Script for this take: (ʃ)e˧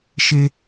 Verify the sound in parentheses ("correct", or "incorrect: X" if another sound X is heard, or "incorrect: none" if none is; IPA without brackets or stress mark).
correct